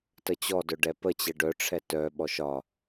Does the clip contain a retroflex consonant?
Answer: yes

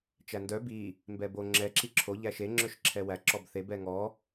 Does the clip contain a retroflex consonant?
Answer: no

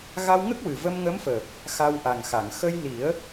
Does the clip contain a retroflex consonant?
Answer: no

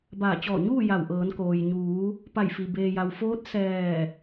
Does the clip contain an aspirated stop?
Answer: no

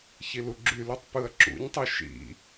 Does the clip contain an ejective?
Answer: no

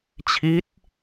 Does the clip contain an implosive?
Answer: no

